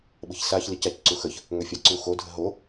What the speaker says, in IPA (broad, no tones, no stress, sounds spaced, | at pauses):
ɓ ə̤ ç s a ç l i c a c ǀ u x ə ç | ŋ ø fʲ a ǀ u x o dʱ ə̤ ɦ o